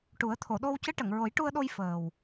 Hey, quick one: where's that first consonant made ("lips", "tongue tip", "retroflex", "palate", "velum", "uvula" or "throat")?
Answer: retroflex